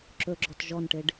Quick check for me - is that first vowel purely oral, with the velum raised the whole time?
yes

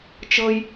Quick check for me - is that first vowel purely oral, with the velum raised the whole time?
yes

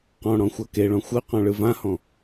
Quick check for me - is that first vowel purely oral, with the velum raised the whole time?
no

